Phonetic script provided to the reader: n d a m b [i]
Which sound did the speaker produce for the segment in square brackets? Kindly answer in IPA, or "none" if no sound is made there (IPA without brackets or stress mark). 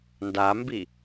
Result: i